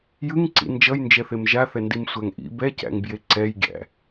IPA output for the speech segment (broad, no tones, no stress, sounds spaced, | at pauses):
j ɯ ŋ ǀ ḭ n d͡ʒ ʌ j n d͡ʒ ɛ θ e m ʒ a θ ɛ n d i m sʷ æ ŋ ʔ ḭ b ɛ c æ̰ ŋ b j e ǀ ɛ j ɡʲ æ̰